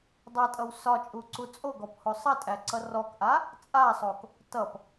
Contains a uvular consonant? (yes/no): no